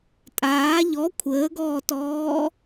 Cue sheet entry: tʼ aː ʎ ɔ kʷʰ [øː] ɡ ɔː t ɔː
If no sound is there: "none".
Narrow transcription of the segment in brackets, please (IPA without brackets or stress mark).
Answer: əː